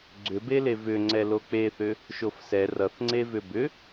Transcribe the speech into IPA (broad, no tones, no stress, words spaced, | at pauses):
ɡ͡ǀʏbele vʏ ŋ͡ǀɛlok͡peθʏ | ʃofsɛ rʌθŋ͡ǀe vʏbʏ